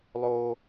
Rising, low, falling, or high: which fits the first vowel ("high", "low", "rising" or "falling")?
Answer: high